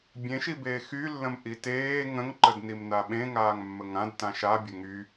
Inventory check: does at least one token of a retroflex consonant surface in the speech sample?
no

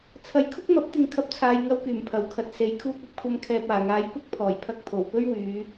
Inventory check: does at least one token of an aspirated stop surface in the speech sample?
yes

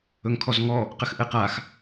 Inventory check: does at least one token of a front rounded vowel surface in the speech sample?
no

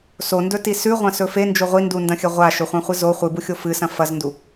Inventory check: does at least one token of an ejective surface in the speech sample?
no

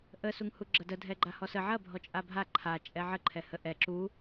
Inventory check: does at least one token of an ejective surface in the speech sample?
yes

